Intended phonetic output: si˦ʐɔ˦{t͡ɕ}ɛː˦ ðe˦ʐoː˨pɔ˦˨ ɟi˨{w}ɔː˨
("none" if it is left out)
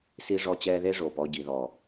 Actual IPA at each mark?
t͡ɕ, ð

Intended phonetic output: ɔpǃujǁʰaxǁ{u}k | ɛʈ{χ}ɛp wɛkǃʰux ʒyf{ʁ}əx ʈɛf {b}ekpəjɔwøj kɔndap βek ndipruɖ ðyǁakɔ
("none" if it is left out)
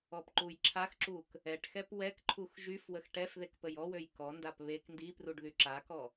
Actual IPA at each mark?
u, x, w, ð

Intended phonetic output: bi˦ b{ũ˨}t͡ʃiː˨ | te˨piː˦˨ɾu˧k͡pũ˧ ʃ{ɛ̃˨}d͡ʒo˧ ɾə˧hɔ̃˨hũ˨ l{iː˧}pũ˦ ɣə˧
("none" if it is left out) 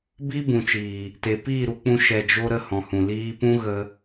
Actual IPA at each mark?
ũ˨, ɛ˨, iː˧

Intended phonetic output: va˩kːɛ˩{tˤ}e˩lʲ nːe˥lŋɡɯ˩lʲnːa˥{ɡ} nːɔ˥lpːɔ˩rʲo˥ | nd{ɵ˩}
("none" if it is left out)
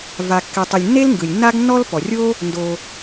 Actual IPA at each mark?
tˤ, ɡ, o˩

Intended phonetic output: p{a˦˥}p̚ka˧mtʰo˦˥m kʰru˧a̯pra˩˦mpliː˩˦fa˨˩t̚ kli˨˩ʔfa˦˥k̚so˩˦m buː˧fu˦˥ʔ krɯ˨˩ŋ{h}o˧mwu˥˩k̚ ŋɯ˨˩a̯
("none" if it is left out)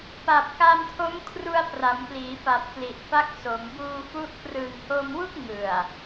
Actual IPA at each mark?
a˨˩, h

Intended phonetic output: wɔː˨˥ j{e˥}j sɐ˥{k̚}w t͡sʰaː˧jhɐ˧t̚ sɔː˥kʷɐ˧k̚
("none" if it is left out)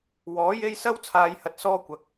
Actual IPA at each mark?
e˥, none

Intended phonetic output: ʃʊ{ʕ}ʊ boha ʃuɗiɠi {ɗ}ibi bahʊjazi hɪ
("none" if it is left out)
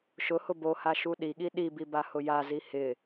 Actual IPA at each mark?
h, ɗ

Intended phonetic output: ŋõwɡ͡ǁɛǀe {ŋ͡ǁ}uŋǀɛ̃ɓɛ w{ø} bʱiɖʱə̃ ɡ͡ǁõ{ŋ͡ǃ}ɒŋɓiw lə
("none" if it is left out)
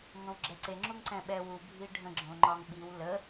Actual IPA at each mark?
ŋ͡ǁ, u, ŋ͡ǃ

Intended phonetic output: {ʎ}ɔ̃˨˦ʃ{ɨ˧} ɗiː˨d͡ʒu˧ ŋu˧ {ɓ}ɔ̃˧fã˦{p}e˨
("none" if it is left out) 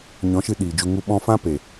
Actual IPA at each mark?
ɲ, ɨ˧, ɓ, p

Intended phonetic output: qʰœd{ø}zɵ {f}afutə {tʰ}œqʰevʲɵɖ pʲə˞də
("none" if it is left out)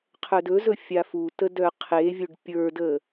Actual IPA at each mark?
ɵ, fʲ, d

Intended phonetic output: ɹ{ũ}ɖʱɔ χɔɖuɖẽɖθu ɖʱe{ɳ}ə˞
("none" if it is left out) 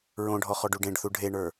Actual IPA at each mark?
õ, ɳ

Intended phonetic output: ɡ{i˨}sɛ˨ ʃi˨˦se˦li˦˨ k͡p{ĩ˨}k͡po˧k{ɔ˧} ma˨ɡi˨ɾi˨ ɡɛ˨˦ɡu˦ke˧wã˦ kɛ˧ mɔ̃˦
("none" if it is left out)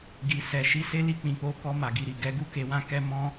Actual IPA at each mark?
i˨, ĩ˨, ɔ˧

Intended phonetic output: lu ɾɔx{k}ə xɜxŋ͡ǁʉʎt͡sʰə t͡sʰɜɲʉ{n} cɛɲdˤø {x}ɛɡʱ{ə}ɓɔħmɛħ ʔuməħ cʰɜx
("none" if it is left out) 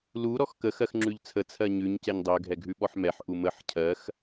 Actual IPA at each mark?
k, ɲ, ɡʱ, ʉ

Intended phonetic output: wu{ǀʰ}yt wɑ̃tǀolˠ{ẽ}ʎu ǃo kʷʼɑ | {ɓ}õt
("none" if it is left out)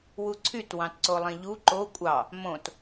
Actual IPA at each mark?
ǀʰ, ẽ, m

